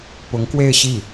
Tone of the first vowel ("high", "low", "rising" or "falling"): rising